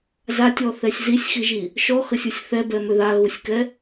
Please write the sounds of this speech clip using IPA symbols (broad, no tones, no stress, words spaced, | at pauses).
zatʲɔθɛsʲ zisʲxiʒi | ʃɔxəsʲusʲ θɛbɛmø ðaɣusʲkɛ